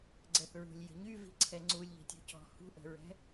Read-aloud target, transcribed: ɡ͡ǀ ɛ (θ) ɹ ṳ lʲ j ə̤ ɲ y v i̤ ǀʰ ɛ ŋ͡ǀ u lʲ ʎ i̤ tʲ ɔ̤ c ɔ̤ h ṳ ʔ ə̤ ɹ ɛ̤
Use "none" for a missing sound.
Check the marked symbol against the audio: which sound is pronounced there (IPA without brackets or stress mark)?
θ